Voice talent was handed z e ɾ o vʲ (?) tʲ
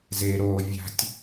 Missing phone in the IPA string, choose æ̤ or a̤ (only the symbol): a̤